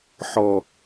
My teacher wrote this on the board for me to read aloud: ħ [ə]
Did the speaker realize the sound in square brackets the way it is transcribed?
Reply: no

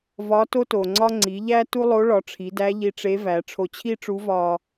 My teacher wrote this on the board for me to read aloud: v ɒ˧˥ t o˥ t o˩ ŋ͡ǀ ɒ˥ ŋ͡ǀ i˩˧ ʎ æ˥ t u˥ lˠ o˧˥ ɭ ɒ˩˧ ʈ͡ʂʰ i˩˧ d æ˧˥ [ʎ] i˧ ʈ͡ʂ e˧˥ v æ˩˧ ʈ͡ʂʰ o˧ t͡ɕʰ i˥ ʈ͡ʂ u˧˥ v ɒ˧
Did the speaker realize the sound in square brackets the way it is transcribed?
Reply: yes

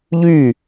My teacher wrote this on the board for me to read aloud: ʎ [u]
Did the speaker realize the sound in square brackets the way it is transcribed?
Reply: no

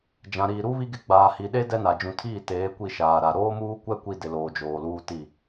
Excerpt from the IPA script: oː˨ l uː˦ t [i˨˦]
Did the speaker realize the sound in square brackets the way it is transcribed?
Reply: no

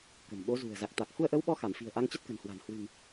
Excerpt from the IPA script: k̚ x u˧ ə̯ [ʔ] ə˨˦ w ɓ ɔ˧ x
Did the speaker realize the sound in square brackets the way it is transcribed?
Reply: yes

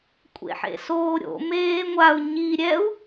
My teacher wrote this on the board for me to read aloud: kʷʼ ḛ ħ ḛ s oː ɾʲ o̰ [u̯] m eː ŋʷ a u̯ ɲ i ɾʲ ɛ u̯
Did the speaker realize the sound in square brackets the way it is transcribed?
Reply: no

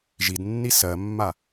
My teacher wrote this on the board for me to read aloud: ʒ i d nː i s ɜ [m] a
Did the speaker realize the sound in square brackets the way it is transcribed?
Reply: no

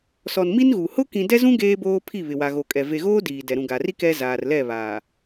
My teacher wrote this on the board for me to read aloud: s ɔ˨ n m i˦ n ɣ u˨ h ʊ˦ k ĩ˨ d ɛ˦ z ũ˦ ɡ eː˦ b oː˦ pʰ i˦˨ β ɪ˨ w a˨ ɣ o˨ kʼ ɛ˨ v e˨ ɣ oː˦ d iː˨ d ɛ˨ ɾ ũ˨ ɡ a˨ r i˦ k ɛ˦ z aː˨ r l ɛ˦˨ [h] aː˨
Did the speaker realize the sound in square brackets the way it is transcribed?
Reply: no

